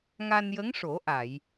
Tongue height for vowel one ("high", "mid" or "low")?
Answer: low